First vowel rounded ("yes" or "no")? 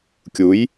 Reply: yes